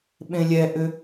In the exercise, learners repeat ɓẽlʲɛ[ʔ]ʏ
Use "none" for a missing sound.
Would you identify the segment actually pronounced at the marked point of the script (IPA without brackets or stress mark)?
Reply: ʔ